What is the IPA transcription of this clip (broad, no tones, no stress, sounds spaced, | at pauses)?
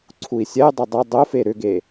ǀʰ u i̯ sʲ ɛ y̯ dˤ ʏ dˤ ʊ dˤ ʊ f e ɾ ʏ ɡ e